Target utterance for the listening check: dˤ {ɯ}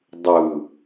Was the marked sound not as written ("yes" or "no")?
no